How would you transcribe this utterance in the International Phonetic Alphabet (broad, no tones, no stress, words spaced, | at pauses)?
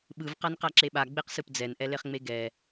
ɓɯv qanqaǁeɓa ɡ͡beqsɯpd͡zɛn ʔɛleχŋ͡meɡɛ